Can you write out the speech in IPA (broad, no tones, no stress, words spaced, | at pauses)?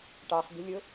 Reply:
ʈɑχbi̤lʲʊ